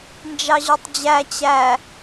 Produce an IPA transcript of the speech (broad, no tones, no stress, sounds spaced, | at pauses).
n d͡ʒ ɑ ʑ ɔ tˤ d͡ʑ æ t͡ɕ æ